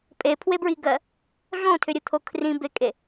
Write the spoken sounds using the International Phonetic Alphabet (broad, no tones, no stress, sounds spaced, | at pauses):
pʼ e pʰ w e b ɹ i ɡ ɜ | ɮ õ tʰ ʏ ɾʲ ɯ t̪ʰ o kʰ r ĩ b e kʼ e